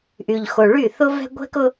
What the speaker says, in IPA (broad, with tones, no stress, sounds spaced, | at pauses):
ʔ y˨ ʎ x o˨ ɭ y˦˨ θ ʊ˦ v ɛ̤˦ ɡʷ ɛ̤˦ k ʊ˦